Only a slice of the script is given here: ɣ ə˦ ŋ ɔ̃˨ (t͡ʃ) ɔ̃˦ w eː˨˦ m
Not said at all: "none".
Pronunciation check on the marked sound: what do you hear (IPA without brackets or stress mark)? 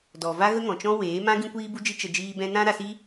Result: t͡ʃ